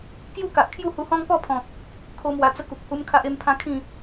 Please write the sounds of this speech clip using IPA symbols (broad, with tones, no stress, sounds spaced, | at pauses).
k j u˥˧ k a˨ ʔ kʰ j u˥˧ h u˧ h ɔ̃˦ ŋ p ɔ˥˧ pʰ ɔ̃˨ k̚ | kʰ o˦ m w a˧ t͡s ə˦ k u˨ k̚ h u˦ m kʰ a˦ ʔ e˦ m pʰ ã˦ kʰ ĩ˥˧